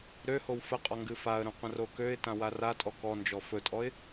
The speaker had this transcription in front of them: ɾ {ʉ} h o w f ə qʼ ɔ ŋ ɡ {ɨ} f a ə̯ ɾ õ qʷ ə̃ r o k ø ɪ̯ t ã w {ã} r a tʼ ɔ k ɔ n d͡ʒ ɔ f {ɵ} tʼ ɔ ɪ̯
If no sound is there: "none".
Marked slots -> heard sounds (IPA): ø, ɨ, a, ɵ

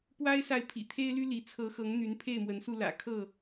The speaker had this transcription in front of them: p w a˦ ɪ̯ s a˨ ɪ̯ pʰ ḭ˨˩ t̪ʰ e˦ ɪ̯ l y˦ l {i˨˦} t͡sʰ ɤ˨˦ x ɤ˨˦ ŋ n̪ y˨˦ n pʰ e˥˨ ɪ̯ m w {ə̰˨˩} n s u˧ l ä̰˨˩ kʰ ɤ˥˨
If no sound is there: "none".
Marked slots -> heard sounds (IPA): i˨˦, ə˨˦

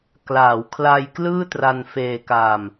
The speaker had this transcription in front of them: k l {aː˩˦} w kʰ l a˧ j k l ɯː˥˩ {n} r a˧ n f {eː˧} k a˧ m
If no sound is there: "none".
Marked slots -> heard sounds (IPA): aː˩˦, t, eː˧

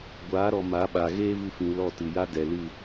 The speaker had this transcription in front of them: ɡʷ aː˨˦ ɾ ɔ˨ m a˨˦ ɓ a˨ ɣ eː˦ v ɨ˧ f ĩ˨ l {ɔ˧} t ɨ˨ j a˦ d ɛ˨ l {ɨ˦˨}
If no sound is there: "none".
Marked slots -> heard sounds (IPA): ɔ˦˨, ɨ˦˨

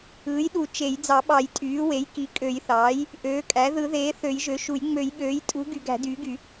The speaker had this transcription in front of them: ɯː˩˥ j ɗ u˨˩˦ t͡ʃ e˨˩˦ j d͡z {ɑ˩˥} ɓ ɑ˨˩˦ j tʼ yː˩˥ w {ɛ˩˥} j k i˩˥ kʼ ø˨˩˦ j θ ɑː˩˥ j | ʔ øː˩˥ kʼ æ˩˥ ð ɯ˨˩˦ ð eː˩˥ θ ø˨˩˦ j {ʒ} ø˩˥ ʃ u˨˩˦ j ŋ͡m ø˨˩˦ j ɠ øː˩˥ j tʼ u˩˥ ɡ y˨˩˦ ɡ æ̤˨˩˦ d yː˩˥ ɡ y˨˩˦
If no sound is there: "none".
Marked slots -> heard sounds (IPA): ɑ˨˩˦, e˩˥, ʒ

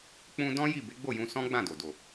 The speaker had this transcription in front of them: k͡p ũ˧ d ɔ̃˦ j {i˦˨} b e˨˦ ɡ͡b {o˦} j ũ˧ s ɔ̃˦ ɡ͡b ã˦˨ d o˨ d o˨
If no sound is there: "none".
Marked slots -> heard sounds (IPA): i˦˨, o˦˨

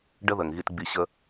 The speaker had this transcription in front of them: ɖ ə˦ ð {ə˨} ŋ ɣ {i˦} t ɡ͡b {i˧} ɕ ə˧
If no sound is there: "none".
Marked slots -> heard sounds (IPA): ə˨, i˧, i˧

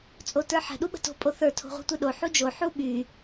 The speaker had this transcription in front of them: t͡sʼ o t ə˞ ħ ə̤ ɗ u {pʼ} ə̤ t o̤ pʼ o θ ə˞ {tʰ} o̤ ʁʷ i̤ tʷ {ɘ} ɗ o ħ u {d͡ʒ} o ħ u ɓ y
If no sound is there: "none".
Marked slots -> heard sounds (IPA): ɓ, tʰ, e, d͡ʒ

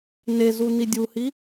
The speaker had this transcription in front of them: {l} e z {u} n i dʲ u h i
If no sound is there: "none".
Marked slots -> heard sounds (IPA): n, u

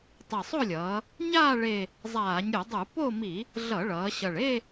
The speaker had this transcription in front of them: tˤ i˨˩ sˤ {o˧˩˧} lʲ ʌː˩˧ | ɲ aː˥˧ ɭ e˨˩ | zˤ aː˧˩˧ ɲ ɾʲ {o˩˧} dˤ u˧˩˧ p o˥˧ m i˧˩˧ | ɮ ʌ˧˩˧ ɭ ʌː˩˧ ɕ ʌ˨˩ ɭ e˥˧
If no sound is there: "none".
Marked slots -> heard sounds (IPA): o˥˧, o˧˩˧

